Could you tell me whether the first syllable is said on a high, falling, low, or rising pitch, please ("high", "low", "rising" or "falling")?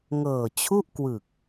low